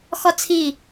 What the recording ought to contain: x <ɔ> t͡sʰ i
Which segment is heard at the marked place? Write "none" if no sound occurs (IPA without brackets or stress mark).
ɔ